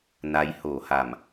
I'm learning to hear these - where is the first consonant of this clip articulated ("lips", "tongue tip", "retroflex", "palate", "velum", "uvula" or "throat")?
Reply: tongue tip